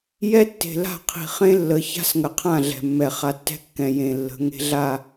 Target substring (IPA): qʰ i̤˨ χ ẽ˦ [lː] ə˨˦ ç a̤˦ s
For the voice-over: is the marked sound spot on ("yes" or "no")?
yes